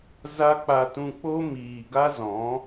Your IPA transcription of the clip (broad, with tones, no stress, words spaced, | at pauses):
za˦ k͡pa˧tũ˧k͡po˦ miː˨ɡa˦ zɔ̃˨˦